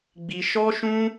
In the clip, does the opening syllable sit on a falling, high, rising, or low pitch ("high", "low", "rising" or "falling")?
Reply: high